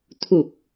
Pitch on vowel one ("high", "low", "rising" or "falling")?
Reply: low